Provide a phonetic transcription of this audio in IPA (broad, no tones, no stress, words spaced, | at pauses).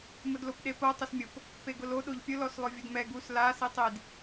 mʊdlopɗepo tˤʊsmʲop | peɡʊlo ɗoʎpʲʊ lɔslˠʊvʲʊdmɛ ɡus la sitˤid